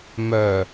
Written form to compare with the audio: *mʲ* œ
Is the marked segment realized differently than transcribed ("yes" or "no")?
yes